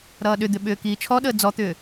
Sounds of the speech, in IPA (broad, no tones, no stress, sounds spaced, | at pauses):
ɾ ʌː ɗ ʏ d̪ ʏ ɓ ʏː k iː t͡ʃʰ ɔ ɗ əː d͡z ɔ t̪ ʏː